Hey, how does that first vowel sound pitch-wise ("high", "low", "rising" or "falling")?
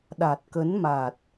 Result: low